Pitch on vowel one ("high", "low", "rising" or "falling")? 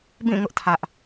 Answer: falling